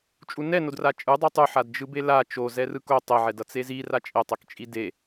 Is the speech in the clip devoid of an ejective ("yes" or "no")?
no